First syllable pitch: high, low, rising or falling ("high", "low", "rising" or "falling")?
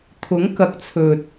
rising